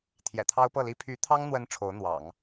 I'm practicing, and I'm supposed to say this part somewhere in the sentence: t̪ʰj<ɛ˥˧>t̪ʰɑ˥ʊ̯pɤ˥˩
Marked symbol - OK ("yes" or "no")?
no